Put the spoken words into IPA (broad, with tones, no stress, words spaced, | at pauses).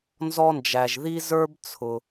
nzɔ˧nd͡ʒæ˩ʒði˧ zə˞˧bt͡sʰʊ˩